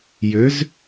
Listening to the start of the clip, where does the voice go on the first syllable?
rising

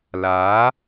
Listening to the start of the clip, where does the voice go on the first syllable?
rising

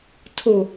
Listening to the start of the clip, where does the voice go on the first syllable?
falling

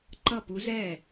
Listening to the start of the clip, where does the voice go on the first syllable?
falling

